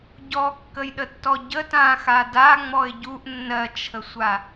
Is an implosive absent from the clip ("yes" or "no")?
no